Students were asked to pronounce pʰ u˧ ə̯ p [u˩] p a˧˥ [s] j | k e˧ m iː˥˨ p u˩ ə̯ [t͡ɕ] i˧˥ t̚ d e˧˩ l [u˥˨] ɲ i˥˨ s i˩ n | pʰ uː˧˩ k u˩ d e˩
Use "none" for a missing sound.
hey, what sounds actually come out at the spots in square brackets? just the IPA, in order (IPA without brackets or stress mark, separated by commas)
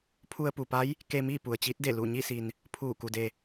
u˩, none, t͡ɕ, u˧˩